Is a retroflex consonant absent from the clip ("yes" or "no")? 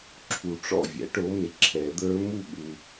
no